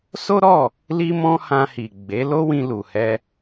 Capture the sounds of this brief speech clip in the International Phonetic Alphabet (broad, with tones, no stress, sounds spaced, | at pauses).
s o˦ ɾ ɔ˦˨ | l i˧ m ɔ̃˧ h ã˧ h i˨ ɡ͡b e˨˦ l o˦ w ĩ˧ l u˨ h ɛ˧